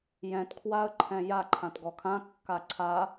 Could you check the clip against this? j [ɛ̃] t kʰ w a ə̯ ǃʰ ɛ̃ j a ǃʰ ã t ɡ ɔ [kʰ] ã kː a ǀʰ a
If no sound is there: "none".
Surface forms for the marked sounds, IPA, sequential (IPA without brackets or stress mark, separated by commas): ɛ̃, kʰ